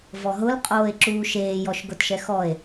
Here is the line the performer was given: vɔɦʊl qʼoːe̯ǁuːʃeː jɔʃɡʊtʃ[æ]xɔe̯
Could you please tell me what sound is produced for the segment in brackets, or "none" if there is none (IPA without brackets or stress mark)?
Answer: ɛ